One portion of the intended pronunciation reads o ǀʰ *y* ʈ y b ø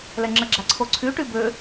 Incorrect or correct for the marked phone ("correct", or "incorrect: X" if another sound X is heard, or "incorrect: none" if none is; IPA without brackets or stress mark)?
correct